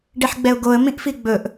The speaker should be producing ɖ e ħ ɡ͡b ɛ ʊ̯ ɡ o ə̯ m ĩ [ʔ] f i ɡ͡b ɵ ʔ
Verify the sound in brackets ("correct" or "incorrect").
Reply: correct